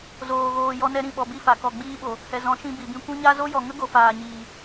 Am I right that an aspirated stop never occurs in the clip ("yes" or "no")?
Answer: yes